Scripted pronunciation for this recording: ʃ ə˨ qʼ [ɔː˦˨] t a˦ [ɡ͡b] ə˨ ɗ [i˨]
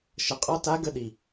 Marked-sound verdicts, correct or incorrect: incorrect, incorrect, correct

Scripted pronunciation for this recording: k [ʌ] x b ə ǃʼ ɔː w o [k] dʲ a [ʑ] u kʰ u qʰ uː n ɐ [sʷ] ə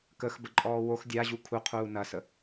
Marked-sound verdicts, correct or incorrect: incorrect, incorrect, correct, incorrect

